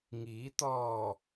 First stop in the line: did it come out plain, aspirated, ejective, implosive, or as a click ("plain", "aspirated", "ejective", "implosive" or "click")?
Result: plain